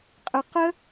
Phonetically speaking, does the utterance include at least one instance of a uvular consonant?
yes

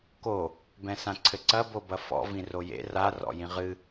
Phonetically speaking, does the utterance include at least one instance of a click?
yes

